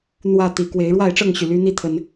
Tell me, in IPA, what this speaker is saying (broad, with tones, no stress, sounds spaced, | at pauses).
n̪ w ä˥˨ t̪ i˨˩ k w e˨˦ ɪ̯ ɻ w a˥˨ ɪ̯ ʈ͡ʂ ɤ˥˨ ŋ ɕ y˩ l y˦ n̪ i˦ t̪ʰ ə˨˦ n